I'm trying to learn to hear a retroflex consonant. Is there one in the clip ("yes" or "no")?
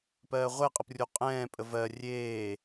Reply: no